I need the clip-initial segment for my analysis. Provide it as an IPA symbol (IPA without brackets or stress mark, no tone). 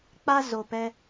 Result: k͡p